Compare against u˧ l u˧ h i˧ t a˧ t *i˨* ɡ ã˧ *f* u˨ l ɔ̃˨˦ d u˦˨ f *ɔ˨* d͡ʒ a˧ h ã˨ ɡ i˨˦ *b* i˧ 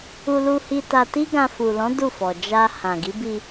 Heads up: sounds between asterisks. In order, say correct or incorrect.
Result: incorrect: i˦, correct, correct, correct

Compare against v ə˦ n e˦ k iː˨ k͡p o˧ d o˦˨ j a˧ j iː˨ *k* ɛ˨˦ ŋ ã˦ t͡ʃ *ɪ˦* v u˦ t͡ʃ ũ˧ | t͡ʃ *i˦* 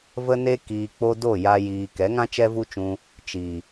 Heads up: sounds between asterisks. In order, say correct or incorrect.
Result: correct, incorrect: ɛ˦, incorrect: i˨

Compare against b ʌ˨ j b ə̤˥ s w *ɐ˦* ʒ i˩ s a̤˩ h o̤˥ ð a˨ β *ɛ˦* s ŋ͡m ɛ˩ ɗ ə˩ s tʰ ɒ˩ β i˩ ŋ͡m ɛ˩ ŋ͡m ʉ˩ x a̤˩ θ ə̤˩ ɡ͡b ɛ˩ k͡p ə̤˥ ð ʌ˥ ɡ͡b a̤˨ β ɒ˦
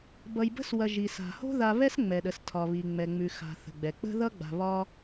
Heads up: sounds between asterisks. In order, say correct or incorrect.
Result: incorrect: ɐ˨, correct

